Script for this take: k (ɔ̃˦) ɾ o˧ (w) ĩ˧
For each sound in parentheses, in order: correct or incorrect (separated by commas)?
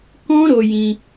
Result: correct, incorrect